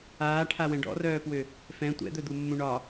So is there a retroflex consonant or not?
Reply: yes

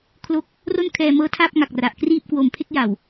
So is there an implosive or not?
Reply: no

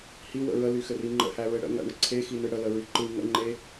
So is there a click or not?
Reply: yes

